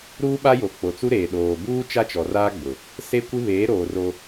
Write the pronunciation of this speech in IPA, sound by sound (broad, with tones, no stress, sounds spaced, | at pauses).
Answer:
ɾ uː˦ ɓ a˦ j o˨ k͡p o˨ t͡s u˦ ɾ eː˨ ɗ oː˨ b uː˦ t͡ʃ a˦ t͡ʃ ɔ˨ r aː˦ ɡ͡b ʊ˨ | s e˦ kʷ ɪ˦ β eː˨˦ ɾ oː˨ r o˦